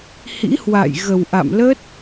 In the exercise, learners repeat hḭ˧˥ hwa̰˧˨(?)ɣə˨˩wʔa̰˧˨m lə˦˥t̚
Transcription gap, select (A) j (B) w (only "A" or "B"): A